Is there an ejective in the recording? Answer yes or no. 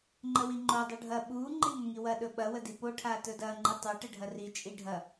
yes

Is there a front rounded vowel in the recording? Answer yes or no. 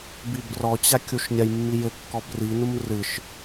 no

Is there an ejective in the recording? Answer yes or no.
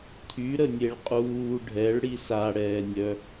yes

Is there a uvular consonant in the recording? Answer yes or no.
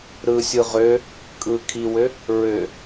yes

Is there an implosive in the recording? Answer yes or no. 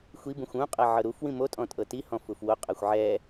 no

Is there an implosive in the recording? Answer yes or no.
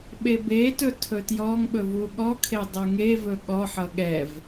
yes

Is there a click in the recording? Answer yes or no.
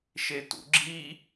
yes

